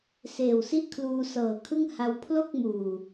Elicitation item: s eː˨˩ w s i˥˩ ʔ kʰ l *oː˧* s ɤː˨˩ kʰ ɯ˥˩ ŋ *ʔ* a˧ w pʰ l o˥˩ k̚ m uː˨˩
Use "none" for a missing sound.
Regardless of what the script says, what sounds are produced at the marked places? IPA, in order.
uː˧, h

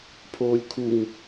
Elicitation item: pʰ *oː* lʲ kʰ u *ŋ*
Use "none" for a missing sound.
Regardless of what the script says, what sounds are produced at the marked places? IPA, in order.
oː, ŋ

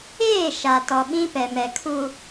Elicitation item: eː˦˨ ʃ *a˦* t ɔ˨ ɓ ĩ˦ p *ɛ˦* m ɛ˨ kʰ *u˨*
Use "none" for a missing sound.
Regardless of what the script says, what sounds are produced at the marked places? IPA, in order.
a˨, ɛ˨, u˨

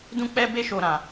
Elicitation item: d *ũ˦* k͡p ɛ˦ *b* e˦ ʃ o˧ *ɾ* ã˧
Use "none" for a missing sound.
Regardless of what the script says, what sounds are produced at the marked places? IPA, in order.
ũ˦, b, ɾ

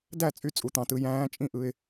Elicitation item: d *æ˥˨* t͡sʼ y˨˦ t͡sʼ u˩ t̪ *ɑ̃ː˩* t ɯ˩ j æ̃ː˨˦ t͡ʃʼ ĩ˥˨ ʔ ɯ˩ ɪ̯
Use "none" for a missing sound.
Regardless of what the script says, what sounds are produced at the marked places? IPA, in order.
æ˥˨, ɑ̃˩

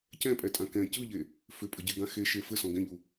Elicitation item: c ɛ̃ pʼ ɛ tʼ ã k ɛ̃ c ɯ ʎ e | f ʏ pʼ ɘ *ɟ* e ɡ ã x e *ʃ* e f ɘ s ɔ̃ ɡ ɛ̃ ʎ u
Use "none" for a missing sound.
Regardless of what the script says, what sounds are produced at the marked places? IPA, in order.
ɟ, ʃ

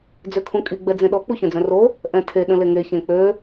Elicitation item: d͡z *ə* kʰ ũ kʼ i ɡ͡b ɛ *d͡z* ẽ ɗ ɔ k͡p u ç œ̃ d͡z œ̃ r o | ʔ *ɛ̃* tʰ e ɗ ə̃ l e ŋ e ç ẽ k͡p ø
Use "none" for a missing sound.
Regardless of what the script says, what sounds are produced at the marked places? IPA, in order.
ø, d͡z, ɛ̃

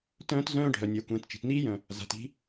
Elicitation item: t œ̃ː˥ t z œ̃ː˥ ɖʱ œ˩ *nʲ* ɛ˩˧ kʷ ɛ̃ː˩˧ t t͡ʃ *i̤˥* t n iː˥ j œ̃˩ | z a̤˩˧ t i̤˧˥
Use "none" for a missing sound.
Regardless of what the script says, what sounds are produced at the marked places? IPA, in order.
nʲ, i̤˩

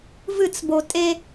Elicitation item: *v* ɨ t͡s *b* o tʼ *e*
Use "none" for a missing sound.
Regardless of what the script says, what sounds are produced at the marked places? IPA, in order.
v, b, e

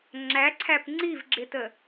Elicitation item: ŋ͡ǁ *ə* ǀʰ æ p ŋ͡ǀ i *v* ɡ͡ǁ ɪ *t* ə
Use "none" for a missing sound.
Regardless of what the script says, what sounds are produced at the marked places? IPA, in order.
æ, v, t

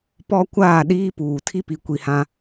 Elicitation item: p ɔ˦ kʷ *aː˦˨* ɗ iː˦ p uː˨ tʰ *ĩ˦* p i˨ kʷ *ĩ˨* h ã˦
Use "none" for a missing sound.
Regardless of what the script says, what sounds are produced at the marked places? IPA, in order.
aː˦˨, i˦, i˨

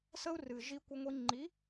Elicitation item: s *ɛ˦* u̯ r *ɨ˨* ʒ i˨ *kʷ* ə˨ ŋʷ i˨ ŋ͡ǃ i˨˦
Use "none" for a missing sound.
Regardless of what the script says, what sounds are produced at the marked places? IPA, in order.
ə˦, ɨ˨, kʷ

